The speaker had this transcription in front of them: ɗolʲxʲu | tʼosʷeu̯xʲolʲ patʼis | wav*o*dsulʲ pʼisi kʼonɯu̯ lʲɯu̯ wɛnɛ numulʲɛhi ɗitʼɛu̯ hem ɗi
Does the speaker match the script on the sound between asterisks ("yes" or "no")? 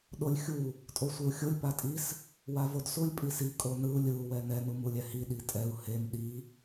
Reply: yes